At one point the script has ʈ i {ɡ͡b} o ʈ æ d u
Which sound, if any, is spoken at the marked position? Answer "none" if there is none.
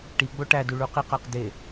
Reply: ɡ͡b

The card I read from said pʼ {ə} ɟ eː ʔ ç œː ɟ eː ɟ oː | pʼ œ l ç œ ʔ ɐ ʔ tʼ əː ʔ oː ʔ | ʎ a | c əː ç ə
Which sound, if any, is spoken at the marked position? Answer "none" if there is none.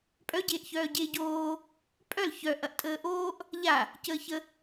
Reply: œ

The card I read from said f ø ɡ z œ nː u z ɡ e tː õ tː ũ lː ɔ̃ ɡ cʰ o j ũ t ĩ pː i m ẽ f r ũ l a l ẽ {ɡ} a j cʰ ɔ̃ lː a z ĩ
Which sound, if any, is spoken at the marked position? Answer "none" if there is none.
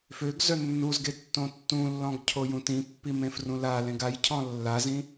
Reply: ɡ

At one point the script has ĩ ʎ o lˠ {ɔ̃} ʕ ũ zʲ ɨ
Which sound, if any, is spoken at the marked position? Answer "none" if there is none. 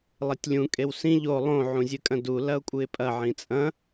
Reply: õ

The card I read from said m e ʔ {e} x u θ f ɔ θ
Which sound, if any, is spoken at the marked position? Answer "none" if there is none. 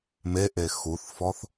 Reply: e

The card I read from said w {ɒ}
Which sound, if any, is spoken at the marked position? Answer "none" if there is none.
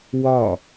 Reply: ɒ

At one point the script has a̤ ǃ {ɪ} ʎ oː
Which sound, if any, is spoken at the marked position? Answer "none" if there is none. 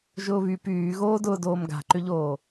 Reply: ʏ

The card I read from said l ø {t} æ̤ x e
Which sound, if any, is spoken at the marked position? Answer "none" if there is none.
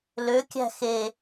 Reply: kʲ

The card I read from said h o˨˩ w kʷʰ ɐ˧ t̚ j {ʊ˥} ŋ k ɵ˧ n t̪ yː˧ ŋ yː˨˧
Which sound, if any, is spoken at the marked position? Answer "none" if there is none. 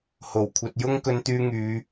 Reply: ʊ˥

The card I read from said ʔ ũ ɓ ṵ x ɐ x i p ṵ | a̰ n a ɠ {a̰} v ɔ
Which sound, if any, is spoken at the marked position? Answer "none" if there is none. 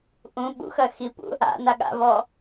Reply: a̰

